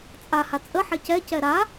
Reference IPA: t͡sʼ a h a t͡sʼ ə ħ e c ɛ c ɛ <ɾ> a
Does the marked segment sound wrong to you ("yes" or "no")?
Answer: no